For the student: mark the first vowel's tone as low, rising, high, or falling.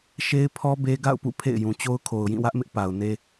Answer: high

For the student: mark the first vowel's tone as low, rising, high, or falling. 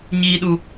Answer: low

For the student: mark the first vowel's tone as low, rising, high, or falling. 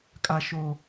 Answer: high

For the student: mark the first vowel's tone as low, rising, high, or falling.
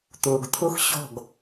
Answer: low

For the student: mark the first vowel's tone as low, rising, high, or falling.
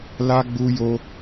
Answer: high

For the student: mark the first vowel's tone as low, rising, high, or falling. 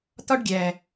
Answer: high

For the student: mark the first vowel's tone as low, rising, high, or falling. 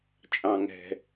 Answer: low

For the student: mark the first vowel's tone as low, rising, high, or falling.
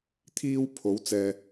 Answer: high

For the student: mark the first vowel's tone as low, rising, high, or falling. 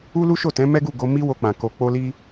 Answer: high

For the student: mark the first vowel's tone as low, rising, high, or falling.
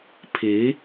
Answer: rising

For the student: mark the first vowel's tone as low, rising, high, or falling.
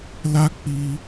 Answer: high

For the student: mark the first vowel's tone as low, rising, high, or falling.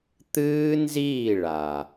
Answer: high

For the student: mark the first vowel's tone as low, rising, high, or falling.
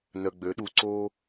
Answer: low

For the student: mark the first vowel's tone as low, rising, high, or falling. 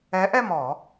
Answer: rising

